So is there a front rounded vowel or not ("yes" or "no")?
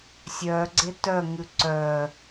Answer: yes